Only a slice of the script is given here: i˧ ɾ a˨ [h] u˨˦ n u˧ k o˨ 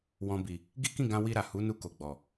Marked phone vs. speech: correct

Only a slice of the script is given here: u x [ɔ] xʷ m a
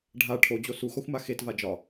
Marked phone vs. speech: correct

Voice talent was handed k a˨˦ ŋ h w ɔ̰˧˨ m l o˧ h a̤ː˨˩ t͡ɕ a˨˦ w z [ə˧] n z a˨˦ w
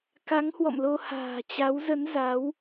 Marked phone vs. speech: incorrect: ə˨˦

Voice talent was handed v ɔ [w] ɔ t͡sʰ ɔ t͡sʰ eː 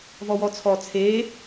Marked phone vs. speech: correct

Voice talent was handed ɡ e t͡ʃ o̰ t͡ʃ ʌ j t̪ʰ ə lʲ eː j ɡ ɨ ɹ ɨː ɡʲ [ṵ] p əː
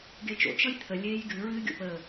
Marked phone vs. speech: incorrect: o̰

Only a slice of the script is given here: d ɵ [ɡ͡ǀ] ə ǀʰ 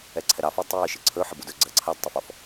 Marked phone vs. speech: correct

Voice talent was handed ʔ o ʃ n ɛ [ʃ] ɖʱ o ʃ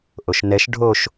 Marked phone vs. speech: correct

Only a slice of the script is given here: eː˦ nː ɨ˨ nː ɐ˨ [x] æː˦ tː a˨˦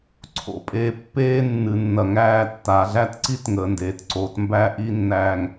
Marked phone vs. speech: incorrect: ŋ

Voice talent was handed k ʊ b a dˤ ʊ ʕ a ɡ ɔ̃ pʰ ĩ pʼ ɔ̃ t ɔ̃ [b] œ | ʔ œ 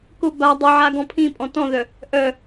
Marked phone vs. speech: incorrect: ð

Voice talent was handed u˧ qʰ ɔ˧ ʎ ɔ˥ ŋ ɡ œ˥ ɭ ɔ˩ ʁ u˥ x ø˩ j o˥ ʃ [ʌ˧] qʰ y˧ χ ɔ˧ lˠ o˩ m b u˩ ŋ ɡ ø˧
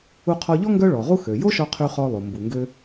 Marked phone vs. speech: incorrect: ɔ˧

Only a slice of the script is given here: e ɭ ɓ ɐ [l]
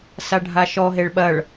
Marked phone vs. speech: incorrect: ɭ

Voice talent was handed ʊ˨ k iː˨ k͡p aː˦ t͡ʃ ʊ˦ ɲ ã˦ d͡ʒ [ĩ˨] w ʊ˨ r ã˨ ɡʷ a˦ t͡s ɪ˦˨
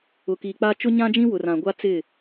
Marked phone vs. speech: incorrect: ĩ˦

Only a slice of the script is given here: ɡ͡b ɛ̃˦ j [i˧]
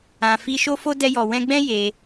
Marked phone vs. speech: incorrect: e˧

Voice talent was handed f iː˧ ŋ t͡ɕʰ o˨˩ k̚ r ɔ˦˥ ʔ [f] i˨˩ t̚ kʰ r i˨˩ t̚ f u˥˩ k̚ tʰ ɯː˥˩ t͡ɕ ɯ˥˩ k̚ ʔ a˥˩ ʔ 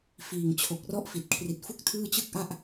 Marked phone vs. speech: correct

